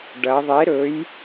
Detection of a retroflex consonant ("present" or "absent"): present